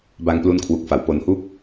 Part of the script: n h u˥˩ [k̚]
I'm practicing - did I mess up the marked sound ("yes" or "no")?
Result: no